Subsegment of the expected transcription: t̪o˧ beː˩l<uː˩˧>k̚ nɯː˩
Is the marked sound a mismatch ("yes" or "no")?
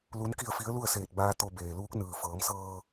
yes